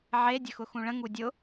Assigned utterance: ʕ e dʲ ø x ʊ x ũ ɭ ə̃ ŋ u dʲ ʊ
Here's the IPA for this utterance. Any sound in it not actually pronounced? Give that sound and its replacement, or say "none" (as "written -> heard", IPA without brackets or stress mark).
ø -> ə